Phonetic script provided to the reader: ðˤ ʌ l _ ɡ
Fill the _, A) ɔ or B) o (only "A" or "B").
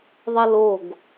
B